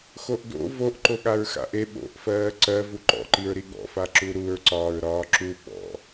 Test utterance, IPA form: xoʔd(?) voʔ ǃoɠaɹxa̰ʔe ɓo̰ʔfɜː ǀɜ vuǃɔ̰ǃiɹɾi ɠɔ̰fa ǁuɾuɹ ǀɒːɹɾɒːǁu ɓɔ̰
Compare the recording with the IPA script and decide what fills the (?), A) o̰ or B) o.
A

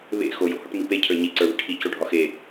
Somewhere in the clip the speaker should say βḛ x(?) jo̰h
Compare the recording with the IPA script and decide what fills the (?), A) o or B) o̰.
A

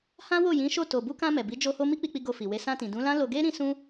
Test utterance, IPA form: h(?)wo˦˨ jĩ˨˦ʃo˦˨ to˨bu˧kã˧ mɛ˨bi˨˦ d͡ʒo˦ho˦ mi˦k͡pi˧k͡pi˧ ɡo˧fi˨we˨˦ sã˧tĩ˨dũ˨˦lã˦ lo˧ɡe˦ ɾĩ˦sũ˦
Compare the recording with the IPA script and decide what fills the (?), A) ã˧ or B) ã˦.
B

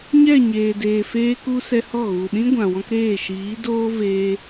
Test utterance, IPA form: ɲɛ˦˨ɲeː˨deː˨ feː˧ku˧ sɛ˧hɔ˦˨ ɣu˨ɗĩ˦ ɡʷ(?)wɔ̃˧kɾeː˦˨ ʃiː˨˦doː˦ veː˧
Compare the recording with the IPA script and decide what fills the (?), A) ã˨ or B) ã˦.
A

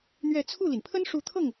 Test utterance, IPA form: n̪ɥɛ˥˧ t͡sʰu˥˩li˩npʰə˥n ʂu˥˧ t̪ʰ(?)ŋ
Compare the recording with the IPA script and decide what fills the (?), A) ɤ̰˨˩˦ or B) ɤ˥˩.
B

